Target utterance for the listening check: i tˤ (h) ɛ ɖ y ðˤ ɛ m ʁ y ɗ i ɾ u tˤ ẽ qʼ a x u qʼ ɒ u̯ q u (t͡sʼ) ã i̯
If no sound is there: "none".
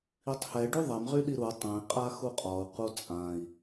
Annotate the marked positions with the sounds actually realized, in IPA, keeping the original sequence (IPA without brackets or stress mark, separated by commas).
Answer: h, t͡sʼ